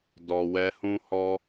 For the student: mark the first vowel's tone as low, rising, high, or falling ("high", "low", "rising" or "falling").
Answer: low